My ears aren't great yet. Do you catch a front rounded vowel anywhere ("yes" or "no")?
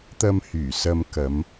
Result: yes